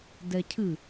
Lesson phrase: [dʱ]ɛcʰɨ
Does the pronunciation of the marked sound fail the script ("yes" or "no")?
yes